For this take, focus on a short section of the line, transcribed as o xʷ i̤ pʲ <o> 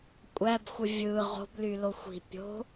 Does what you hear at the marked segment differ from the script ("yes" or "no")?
yes